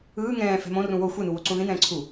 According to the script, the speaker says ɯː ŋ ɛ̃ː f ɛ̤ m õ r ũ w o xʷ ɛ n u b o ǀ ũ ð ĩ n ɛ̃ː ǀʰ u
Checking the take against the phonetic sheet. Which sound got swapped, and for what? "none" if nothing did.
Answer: b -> w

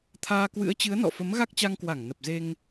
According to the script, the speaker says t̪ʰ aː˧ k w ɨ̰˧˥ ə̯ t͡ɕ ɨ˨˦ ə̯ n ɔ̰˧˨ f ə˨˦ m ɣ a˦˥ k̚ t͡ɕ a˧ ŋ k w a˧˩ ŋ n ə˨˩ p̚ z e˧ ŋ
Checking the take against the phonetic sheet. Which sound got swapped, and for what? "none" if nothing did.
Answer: none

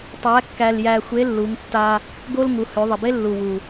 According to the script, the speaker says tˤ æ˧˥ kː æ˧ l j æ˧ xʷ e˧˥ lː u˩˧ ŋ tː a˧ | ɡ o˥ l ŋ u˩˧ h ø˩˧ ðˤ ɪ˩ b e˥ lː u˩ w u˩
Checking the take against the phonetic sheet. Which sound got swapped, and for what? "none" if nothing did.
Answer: none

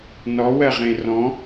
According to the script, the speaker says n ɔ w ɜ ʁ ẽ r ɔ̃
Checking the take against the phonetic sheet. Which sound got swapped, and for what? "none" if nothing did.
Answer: none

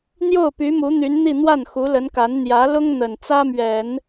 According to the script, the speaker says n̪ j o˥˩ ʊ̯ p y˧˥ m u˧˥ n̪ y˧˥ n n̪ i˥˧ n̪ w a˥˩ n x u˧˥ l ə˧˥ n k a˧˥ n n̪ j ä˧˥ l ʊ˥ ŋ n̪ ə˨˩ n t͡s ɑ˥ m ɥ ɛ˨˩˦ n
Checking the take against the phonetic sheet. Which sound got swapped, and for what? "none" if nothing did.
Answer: ɑ˥ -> ä˥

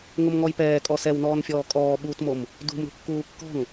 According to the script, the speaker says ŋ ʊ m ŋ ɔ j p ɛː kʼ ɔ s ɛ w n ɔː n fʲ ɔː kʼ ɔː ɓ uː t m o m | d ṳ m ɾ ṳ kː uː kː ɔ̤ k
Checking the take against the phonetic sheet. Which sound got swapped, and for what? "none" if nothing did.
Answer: k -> ŋ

